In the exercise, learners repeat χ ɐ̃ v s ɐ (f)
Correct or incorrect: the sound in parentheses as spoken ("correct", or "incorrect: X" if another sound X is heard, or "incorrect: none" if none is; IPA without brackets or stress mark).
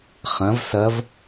incorrect: v